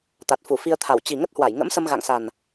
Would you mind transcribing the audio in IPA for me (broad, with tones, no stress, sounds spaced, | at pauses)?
t̪ a˨˩ t̚ f u˧˩ f i˧ ə̯ t̪ʰ a˧˩ w t͡ɕ i˨˩ ŋ ə˦˥ t̚ h w a˧˩ j ŋ ə̰˧˥ m s ə˧ m ɣ a̰˧˨ ŋ s a˨˩ n